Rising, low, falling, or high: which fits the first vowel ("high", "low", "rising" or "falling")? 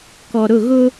low